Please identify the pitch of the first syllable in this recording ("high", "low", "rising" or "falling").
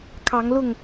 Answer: rising